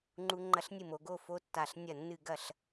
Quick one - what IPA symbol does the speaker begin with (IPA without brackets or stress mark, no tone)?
ŋ͡ǃ